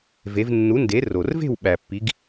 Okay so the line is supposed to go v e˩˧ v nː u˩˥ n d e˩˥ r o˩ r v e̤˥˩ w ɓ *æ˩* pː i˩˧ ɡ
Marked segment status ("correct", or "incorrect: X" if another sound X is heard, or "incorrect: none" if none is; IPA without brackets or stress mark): correct